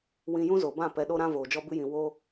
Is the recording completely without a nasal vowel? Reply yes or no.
no